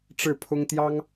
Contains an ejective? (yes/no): no